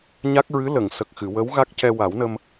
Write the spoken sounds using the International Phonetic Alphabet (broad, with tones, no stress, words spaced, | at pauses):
ɲa˦˥k̚ɹɨ˧˥ lə˨˩˨ŋ sə˨˩k̚xɨ˨˩˨wə˧˥w ɣa˦˥k̚cɛ˧wa˨˩˦wnə˧m